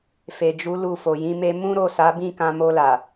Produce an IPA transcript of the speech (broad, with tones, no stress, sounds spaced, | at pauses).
f e˨ d͡ʒ u˨˦ l u˦˨ f o˨ j ĩ˨˦ m e˦ m ũ˦ ɾ o˦˨ s a˨˦ b ĩ˦˨ k ã˧ m o˧ l a˨